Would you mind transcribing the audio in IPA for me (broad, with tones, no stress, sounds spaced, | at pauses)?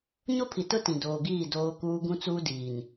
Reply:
ɲ o˦ pʰ i˨ t ʊ˦ t ĩ˨ d oː˨ ɡ iː˦˨ d oː˦ k uː˦ ɡ ũ˦ t͡s uː˦ d iː˨ n